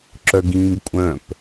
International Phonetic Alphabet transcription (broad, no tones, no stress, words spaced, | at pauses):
ǁœɡĩːɡkʷʼœ̃p